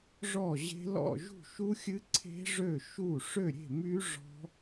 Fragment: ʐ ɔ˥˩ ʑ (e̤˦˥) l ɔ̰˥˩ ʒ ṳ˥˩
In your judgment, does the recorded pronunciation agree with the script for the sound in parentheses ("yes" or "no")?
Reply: yes